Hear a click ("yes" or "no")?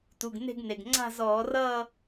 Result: yes